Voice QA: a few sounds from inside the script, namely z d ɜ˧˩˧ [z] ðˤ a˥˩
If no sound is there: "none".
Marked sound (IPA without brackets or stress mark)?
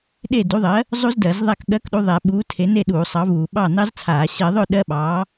z